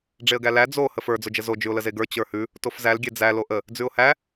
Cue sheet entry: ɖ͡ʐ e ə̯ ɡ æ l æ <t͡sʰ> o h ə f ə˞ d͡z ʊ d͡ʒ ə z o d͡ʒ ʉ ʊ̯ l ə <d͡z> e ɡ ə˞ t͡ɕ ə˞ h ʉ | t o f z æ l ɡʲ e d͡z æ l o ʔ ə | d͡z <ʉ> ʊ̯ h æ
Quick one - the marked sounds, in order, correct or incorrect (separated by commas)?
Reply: incorrect, incorrect, correct